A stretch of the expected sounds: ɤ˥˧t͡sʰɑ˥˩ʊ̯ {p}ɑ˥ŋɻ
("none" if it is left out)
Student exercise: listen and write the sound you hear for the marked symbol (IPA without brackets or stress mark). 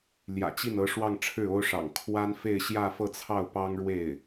p